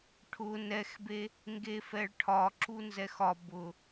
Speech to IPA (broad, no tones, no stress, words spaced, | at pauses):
ʈʰʊ nɛxbe | ŋɡefɛɭʈʰɒ ǁunzɛxɒ bʊ